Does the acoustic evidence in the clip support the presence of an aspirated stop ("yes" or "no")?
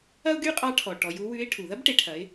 yes